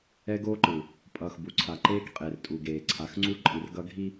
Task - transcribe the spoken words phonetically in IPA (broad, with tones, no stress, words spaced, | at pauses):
ɛ˦ɡoː˦ǃɯ˨ | pʼʌː˨xbu˨ǀʰa˨ ǃeː˦kqʼe˨rtʼu˨ɡeː˨ ǀʰa˨xŋ͡ǀu˦ ǃʼi˨rɡʌ˦ ɡʱi˦